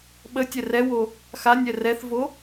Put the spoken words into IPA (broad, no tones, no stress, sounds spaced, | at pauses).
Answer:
ɓ ə tʲ ɛ r ɛ w o | x a nʲ ɛ r ɛ θ v o